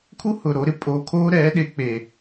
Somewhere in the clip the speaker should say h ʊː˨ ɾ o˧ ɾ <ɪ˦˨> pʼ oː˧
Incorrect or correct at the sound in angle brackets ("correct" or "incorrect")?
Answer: correct